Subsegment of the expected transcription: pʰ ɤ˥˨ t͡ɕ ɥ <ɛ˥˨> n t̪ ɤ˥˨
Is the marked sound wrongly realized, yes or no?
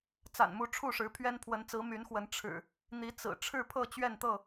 no